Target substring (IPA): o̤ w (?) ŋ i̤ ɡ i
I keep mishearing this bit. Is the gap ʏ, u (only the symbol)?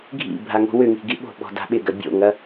ʏ